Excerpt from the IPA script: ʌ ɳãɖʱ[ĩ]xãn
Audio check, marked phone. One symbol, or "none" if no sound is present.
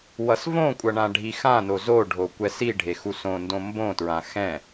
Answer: i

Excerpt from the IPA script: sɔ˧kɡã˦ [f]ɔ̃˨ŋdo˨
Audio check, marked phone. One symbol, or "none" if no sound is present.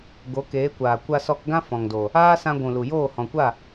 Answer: f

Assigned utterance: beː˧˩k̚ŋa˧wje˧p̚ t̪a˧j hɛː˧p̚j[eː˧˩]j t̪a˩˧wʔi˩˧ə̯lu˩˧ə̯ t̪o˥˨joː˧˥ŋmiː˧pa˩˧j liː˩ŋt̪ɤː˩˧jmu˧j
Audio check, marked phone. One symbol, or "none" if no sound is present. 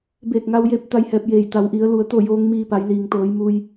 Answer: eː˧˩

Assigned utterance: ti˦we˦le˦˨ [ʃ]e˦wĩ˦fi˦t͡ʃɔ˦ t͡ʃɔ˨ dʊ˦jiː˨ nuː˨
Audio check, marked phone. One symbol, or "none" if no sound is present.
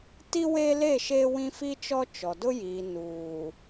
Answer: ʃ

